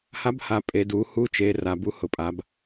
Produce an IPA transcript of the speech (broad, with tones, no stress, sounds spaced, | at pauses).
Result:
h a˨˥ b h a˩˧ pʼ e˩˧ d u˩˧ h u˨˥ t͡ʃ e˩˧ r a˩˧ b u˨˥ h ʊ˩˧ pʼ a˩˧ b